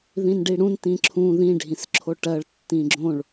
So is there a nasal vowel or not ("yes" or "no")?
yes